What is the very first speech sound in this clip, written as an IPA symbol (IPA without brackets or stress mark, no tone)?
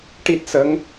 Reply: ʈ